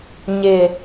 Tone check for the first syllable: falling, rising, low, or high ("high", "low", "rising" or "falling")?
low